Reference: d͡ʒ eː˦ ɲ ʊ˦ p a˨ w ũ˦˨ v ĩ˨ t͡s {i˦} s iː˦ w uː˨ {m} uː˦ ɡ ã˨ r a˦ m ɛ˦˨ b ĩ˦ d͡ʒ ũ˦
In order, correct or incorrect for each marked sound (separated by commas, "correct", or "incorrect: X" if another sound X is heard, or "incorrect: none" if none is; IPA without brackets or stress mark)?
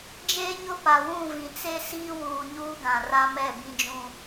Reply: incorrect: e˦, incorrect: ɲ